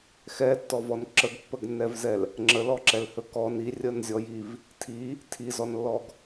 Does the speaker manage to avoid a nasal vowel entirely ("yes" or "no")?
yes